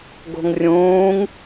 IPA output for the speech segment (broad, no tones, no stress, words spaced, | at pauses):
ɡo̤ŋrʲũːŋ